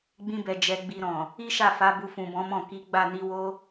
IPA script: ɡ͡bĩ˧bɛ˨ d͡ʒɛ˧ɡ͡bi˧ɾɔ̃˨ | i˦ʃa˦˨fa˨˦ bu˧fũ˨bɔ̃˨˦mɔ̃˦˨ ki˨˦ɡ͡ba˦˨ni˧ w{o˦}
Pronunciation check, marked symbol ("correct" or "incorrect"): correct